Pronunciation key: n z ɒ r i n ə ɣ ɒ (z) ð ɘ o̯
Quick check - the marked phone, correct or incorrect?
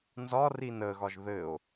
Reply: incorrect